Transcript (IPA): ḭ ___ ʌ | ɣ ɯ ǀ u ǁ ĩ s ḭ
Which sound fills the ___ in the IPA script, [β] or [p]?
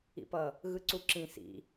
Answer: p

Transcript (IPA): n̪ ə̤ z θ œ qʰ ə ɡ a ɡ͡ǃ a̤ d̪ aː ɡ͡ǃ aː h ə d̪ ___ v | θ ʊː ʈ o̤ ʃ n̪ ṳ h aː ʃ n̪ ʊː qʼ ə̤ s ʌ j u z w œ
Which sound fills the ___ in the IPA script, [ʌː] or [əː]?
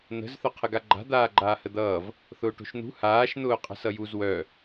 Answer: ʌː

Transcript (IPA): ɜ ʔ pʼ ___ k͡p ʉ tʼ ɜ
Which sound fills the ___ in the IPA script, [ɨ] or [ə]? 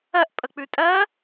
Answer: ə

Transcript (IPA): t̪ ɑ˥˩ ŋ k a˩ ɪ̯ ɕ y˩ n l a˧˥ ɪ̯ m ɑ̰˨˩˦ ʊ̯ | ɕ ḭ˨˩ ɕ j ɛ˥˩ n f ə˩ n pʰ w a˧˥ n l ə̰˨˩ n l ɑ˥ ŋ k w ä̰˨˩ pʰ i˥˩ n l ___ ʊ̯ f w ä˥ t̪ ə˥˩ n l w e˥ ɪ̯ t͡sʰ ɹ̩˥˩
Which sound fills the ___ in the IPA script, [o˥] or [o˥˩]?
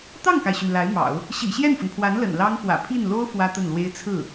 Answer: o˥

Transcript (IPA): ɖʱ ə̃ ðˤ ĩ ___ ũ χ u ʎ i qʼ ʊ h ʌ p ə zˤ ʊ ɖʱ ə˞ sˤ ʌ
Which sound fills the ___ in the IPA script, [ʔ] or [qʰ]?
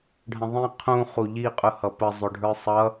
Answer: qʰ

